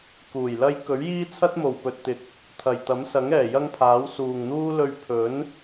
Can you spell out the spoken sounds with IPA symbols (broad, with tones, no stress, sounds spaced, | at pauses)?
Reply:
k uː˨˩ j l ɐ˥ j k ɵ˨˥ ɥ j iː˥ t͡sʰ ɐ˥ t̚ m o˨˩ w p ɵ˨ t̚ t̪ ɪ˨ k̚ | t̪ʰ ɐ˨ j t̪ ɐ˨˥ m s ɐ˨˥ ŋ ɛː˨˩ j ɐ˥ ŋ pʰ aː˨˥ w s uː˨ ŋ n̪ uː˥ l ɵ˧ ɥ pʰ ɵ˨˥ n